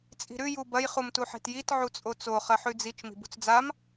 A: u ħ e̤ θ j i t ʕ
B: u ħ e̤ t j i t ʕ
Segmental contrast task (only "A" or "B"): B